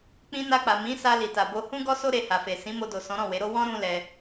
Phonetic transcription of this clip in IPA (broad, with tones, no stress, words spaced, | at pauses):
k͡pĩ˧na˧k͡pa˨ mĩ˨˦sa˧ li˨ta˨bo˧ hũ˦ɡɔ˦so˦ ɾe˧ha˨fe˨ sĩ˨˦mo˧do˨ sɔ̃˨˦ɾɔ̃˦˨ we˨˦ɾo˦ wɔ̃˦ ɾũ˦lɛ˧